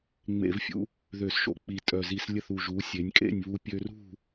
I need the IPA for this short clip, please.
ŋ͡m ḛ˧˩˧ v fʲ ṵ˧ | ð ø˧˩˧ s ʃ o̰˧˥ k͡p i˨˩ tʼ œ˨˩ z i˧˩˧ s lʲ ɘ˥˩ θ u˨˩ ʒ u˩˧ sʲ e˩˧ nʲ kʼ ḛ˥˩ nʲ β u˧ pʲ ø˧ r ṳ˥˩

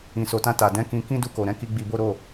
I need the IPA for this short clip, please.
ĩ˨ s o˨ t ã˧ t a˨ d ɛ̃˨˦ k ĩ˧ k ĩ˧ d u˧ k o˨ ɾ ɛ̃˧ k i˧ ɡ͡b i˧ b o˦ ɾ o˦˨

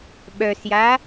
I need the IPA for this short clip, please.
ɓ œ s j a

